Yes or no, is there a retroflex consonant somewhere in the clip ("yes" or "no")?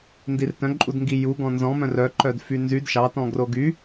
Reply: no